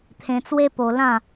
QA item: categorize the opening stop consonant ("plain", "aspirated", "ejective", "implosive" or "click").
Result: aspirated